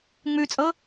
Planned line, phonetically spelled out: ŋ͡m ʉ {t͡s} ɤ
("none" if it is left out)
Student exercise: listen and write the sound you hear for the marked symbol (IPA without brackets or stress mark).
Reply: t͡sʼ